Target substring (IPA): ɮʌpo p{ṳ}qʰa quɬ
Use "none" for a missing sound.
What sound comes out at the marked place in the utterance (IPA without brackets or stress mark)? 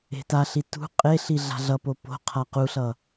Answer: o̤